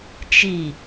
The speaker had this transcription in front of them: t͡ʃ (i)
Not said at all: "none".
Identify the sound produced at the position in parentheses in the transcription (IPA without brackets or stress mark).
i